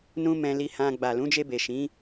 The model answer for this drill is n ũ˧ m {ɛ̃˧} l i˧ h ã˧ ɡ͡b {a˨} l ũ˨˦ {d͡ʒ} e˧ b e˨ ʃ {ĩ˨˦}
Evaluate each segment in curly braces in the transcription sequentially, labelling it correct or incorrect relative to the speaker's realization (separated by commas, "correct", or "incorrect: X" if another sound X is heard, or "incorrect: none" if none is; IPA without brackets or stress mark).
correct, correct, correct, correct